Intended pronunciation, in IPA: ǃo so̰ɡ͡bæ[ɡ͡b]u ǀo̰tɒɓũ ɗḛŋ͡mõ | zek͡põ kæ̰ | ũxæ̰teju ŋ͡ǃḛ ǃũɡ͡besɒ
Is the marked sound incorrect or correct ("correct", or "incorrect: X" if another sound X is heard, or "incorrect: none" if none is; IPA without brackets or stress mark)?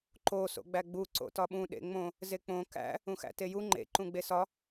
correct